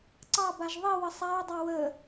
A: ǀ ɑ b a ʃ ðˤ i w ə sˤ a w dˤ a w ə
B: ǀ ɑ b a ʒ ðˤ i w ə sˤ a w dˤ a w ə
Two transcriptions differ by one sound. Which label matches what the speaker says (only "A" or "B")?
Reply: B